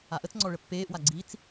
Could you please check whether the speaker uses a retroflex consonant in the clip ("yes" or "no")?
yes